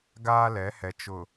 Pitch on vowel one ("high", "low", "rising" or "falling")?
high